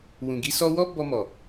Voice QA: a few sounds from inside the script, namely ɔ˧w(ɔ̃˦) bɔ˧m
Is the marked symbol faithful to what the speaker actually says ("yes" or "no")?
no